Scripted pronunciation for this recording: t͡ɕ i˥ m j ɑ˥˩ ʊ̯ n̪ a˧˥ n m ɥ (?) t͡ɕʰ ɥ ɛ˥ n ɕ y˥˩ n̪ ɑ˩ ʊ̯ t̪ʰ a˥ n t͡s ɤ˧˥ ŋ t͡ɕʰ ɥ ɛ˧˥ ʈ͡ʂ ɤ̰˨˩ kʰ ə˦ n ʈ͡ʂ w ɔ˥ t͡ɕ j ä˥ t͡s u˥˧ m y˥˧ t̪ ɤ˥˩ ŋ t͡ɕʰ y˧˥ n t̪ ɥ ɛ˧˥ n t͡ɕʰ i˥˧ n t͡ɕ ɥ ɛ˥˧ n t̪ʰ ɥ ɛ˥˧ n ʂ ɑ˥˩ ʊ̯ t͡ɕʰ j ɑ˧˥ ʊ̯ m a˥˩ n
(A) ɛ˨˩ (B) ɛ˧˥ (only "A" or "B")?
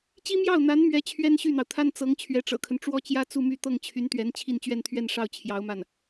B